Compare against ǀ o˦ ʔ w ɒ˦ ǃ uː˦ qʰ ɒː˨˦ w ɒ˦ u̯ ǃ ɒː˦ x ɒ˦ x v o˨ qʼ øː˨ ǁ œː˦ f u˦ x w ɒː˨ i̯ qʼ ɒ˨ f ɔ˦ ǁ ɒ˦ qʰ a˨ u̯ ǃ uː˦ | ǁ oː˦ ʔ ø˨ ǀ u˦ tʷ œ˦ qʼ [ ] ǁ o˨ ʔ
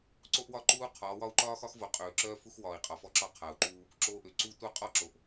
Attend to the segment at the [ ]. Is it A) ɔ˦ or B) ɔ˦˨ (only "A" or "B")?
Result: A